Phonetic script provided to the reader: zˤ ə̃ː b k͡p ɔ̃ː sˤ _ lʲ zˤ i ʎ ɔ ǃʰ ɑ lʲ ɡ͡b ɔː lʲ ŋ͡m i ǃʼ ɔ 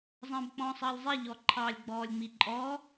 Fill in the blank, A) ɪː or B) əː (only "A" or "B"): B